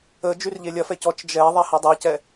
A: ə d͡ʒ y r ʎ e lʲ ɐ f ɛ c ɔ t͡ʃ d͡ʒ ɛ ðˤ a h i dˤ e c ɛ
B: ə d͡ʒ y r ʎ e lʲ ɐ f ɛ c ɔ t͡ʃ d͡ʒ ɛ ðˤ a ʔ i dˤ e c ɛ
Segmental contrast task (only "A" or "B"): A